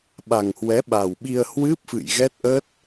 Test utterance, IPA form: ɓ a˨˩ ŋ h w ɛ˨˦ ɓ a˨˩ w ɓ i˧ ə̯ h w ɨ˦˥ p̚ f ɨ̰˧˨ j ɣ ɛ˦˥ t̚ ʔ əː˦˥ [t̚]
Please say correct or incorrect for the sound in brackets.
correct